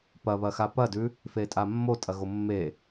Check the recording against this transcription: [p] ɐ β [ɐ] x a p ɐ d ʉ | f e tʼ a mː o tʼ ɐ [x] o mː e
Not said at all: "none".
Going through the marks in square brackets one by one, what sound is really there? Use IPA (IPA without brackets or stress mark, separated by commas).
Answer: p, ɐ, ɣ